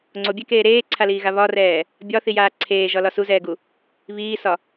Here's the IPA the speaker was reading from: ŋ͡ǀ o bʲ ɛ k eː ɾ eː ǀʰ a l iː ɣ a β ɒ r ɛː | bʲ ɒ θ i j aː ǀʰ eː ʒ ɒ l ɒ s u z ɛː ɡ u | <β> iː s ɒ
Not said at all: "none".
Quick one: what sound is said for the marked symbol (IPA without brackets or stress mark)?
β